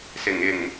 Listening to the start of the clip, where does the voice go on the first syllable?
low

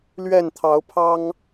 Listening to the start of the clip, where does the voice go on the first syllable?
falling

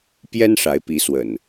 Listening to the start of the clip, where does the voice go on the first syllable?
high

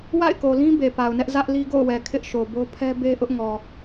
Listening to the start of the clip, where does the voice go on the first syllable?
falling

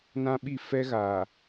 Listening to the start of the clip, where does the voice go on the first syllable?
high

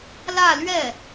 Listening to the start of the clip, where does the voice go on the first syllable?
falling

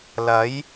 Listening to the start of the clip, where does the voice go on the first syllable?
rising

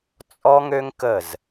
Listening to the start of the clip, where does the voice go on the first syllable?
high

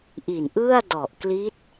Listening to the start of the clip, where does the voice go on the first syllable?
low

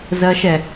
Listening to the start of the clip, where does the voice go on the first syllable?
high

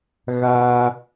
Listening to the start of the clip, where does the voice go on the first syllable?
high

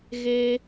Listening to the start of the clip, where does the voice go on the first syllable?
high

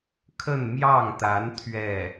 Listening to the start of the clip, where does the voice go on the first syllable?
falling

